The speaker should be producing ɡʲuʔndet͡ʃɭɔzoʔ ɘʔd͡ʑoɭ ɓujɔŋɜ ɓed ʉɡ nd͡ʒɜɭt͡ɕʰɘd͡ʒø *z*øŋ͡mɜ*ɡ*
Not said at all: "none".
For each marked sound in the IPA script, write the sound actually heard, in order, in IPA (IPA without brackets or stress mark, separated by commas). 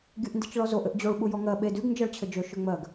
ʃ, ɡ